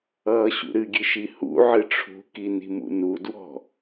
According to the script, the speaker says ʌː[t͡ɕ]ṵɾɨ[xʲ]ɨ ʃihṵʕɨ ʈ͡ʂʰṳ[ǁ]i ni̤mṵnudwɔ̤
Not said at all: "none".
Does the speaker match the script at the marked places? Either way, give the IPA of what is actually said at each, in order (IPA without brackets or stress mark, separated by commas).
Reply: ɕ, ɡʲ, k